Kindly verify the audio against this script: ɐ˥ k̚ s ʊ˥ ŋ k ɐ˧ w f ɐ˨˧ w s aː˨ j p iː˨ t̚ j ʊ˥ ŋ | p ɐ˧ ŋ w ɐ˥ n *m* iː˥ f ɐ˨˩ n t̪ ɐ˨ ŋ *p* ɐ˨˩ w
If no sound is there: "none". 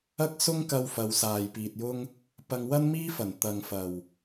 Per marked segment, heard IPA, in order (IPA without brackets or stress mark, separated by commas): m, f